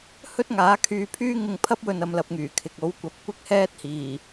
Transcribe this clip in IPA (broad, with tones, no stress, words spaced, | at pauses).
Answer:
hɵ˥t̚ŋaː˨˥kʰyː˧ pʰyː˥ ŋɪ˧ŋpʰɐ˥p̚wɵ˧n ɐ˧mlɐ˧p̚ŋyː˨˩kʰɪ˨k̚ o˨˥w kʷɐ˨˥p̚kʷɪ˥k̚hɛː˥t̚hiː˨˩